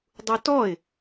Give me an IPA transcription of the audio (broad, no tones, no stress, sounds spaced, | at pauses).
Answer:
dˤ u t ɔ ɪ̯